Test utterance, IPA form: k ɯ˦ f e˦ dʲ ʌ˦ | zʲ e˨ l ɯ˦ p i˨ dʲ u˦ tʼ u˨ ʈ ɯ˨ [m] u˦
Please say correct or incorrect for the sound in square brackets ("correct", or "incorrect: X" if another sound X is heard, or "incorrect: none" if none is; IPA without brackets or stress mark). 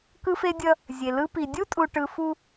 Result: incorrect: f